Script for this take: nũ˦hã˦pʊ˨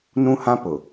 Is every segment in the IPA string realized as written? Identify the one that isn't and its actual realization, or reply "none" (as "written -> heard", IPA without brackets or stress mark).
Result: none